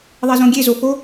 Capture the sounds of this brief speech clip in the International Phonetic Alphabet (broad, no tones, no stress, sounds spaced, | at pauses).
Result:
ðˤ ɛ z õ ɡʲ e z o f o